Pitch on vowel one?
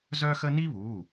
high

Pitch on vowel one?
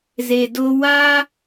low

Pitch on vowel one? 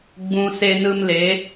low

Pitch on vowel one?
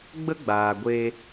high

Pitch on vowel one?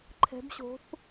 rising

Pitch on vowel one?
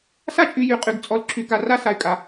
high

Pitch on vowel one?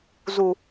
low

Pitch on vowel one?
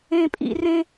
low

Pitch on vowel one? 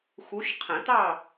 rising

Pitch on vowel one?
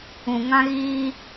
low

